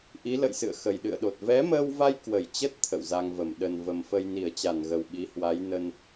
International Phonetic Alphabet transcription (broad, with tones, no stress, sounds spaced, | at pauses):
ʔ i˨˦ l ə̰˧˨ j s ɨ̰˧˨ ə̯ x ə˨˩ j ɗ ɨ̰˧˨ ə̯ ɗ o˨˩ t̚ v ɛ˨˦ m əː˧ w v a˧ j k w ə˧˩ j t͡ɕ ə˦˥ t̚ t̪ʰ ə̰˧˨ w z a˧ ŋ v ə˧˩ m ɗ ə˨˩ n v ə˨˩ m f ə˧ j n i˧˩ ə̯ t͡ɕ a˧˩ n ɣ ə˨˩ w ɓ i˨˦ h w a˨˦ j n ə˧ n